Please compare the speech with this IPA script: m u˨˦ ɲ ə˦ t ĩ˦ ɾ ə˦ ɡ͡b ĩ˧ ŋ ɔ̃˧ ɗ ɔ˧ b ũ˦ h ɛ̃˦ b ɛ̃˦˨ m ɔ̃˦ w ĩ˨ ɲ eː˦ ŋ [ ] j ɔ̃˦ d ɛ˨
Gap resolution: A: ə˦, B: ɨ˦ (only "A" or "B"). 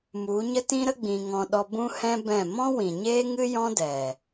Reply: B